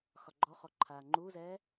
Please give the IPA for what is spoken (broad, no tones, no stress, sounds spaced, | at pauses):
x ɒ ɡ͡ǃ ɔ χ ɔ ǃʰ aː ŋ͡ǃ uː z ɛː